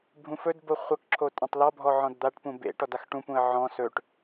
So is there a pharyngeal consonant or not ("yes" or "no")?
yes